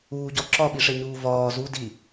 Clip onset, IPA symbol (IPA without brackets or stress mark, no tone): uː